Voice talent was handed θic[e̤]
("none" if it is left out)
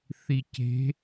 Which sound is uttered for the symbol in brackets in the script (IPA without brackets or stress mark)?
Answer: e̤